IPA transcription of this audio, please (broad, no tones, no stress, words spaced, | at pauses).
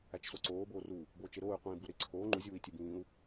æt͡ʃsoǀoː boːru | boːt͡ʃeɾoːy̯ qʷĩːbuɾe ǀʰoː ŋ͡ǃu zʲuːi̯tʲebĩːu̯